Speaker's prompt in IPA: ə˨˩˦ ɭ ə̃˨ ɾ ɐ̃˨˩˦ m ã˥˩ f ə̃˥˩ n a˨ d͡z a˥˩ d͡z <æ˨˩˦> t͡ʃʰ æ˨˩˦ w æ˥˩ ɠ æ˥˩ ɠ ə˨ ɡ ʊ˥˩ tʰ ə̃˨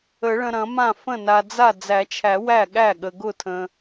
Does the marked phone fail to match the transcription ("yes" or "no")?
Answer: no